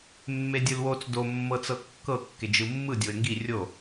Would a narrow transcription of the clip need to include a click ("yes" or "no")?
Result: no